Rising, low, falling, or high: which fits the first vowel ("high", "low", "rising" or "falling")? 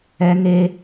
high